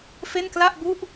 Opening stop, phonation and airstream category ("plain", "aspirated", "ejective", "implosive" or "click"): plain